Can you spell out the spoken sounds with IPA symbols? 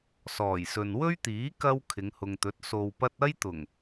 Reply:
s ɔː˨˩ j s ɵ˨ n w ɵ˥ ɥ t̪ iː˨˥ k ɐ˥ w kʰ ɪ˨˧ ŋ h ʊ˨ ŋ t̪ ɵ˨˥ t̚ s o˧ w p ɐ˥ t̚ ɐ˥ j t̪ ʊ˨˩ ŋ

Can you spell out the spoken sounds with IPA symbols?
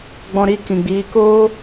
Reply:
ɡ͡b ɔ̃˧ ɾ i˧ k ĩ˨ ɡ͡b iː˨˦ k oː˦

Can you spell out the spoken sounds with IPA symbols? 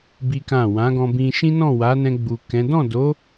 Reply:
b i˦ k ã˦˨ w ã˨˦ ɡ ɔ̃˧ b ĩ˧ ʃ ĩ˦ n ɔ̃˦˨ w a˨˦ n ɛ̃˧ ɡ͡b u˨ k ɛ̃˨˦ d ɔ̃˦˨ d o˨˦

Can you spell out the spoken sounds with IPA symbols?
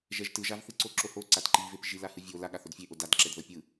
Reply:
ʒ ɛ ʒ t ɯ ʒ a v θ ɯ ǀ o ǁ o h o ǀ a t ǃ i v e p ʒ i l a h ɯ vʲ o l a ɠ a θ o d fʲ e ʔ o d a d ǁ ɛ d ð ɤ pʲ ɯ

